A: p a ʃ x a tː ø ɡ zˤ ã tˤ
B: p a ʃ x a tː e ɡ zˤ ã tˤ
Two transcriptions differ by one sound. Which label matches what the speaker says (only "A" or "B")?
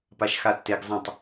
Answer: B